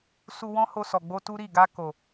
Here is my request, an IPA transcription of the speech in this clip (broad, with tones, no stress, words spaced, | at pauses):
su˧ wɔ̃˦ho˧sɔ˨ɡ͡bo˧ tu˦ɾi˦˨ ɡa˧ko˨